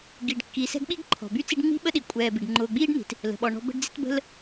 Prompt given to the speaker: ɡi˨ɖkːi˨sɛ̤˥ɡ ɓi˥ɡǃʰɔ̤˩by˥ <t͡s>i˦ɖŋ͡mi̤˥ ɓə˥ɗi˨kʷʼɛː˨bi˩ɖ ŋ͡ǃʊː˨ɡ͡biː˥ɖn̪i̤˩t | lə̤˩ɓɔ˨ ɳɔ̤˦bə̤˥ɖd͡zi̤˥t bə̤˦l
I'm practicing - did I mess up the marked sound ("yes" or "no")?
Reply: no